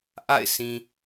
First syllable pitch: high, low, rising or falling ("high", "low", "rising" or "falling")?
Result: falling